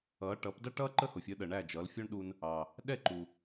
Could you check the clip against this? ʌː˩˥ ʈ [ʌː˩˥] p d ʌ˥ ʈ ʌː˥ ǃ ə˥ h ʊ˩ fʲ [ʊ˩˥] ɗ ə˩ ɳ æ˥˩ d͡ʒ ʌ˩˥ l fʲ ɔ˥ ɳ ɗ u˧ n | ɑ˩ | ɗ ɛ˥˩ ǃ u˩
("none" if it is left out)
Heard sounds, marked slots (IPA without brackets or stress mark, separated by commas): ʌː˩˥, ə˩˥